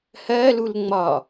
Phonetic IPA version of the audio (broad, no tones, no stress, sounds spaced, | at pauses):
h ɜ l u l ŋ͡m ɒ